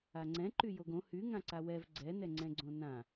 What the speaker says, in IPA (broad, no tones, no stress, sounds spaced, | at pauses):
a ŋ͡ǀ ɛ̃ ǃ y j o ɡ õ h y ŋ ã ǀ a w ɛ v ɡ͡ǀ ɛ n ɛ ŋ͡ǀ ɛ̃ ɡ͡ǀ õ n ã